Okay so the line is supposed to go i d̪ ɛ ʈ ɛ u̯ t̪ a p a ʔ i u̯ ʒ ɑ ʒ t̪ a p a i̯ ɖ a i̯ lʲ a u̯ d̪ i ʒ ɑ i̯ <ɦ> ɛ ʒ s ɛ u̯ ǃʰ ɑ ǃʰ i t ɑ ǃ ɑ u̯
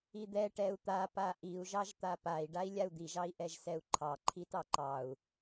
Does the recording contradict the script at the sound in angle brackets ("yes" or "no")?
yes